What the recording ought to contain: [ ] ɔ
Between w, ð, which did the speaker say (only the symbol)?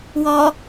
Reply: w